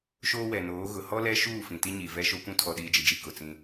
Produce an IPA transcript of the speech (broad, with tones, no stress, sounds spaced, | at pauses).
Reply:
ʃ oː˦ w ɛ˨ n oː˨˦ ɣ ʊ˨ h ɔ˦ l ɛ˦ ʃ uː˦˨ f ĩ˨ t i˦ ɲ i˨ v ɛ˦ ʃ o˦ kʷ ũ˦ tʰ ɔ˨ ɗ iː˨ d͡ʒ i˨ d͡ʒ i˨ k ʊ˨ t͡s ĩ˦